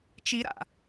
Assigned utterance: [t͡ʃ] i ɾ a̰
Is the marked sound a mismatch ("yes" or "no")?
no